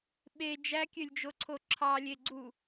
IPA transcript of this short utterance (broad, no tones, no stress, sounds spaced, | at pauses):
ɓ e d͡ʒ æ kʲ ø lʲ d͡ʒ o ǀʰ o ǁʰ ɑ lʲ e ɡ͡ǀ u